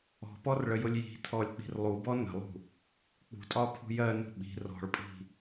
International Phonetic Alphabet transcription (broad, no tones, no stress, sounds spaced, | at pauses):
ɔ̤ p ɔ r ɭ ə j ʊ lʲ j i̤ tʰ ɔ lʲ k͡p i̤ r lˠ u b ɔ n ə̤ lˠ ṳ | k͡p ṳ tʼ ɒ pʰ ṳ j ɜ n ṳ ɓ i̤ r ɔ̤ ɭ pʼ i̤